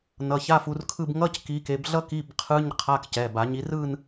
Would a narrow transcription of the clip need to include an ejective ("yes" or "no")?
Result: no